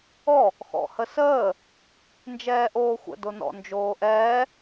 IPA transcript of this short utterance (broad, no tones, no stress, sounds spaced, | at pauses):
ɔ | x ɔ̰ h ə s əː | n d͡ʒ ɛː ʔ oː xʷ ə̰ d o n ɔ̰ n d͡ʒ oː ʔ ɛː